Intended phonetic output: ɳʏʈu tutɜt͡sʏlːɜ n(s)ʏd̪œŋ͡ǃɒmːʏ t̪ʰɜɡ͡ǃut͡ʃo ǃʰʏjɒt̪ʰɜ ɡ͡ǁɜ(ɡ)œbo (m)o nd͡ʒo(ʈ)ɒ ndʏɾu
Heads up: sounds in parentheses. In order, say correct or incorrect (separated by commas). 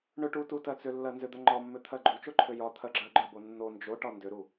incorrect, incorrect, incorrect, correct